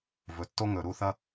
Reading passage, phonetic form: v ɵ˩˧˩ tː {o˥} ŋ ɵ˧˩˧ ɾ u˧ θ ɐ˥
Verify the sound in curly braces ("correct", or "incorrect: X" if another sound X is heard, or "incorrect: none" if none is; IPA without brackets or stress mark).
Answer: correct